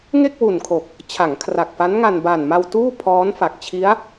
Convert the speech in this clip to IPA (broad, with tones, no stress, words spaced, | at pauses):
ŋe˥˩k̚wu˨˩nkʰo˨˩k̚ | t͡ɕʰa˩˦ŋkʰra˨˩k̚fa˦˥nŋa˧n ba˨˩nma˧w tuː˥˩pʰɔː˦˥n fa˨˩k̚t͡ɕʰi˦˥a̯